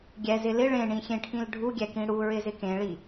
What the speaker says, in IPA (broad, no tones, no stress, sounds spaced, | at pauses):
ɡʲ ɛ z ɪ l ɪ ɭ ẽ ɳ ĩ xʲ ẽ ʈʰ ĩ l ɖʱ u ɡʲ ɛ k ĩ ɽ u ɹ ɪ z ɪ k ẽ ɭ i